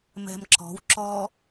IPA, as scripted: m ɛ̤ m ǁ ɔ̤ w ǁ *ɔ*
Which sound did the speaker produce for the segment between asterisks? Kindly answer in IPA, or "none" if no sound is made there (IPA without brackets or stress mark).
ɔ